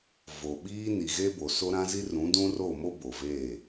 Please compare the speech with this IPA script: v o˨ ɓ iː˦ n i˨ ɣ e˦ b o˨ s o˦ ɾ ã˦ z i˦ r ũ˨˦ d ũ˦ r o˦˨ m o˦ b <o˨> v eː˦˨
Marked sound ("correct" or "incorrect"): correct